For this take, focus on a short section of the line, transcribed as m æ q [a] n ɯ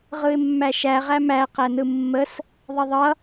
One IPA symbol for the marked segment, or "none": æ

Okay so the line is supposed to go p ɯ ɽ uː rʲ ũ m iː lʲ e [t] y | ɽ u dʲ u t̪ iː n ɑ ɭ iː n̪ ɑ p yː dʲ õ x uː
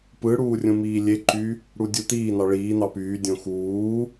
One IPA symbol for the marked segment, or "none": ǃ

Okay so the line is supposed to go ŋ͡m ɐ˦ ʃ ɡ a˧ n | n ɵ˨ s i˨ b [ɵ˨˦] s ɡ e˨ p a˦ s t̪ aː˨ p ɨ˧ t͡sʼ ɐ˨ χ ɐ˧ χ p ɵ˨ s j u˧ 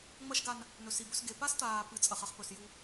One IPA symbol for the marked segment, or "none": ɵ˨˦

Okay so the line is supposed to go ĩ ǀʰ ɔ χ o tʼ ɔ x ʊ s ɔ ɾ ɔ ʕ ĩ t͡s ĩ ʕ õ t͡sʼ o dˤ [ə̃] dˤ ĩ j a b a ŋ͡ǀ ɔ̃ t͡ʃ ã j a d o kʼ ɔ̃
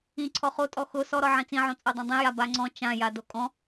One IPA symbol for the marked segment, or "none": ã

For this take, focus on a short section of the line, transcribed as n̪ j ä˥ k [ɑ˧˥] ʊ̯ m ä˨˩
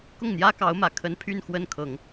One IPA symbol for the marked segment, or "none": ɑ˧˥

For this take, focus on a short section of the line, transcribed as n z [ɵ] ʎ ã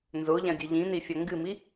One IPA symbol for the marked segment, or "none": o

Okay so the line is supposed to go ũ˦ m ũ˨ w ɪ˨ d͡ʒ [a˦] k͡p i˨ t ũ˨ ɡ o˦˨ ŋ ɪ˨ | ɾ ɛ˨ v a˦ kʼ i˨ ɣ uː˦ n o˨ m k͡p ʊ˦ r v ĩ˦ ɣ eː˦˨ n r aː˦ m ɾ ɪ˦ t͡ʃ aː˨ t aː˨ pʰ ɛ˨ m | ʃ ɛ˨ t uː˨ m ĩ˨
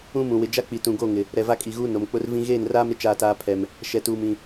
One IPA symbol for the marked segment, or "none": a˦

